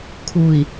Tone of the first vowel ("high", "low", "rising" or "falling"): low